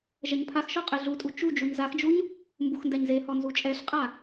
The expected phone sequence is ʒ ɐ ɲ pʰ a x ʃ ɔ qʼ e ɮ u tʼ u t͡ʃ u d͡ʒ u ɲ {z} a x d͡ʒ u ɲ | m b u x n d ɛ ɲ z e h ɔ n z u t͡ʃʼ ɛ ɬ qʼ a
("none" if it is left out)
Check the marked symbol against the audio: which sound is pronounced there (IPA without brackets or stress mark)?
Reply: z